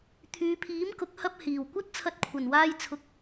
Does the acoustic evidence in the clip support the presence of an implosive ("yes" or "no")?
no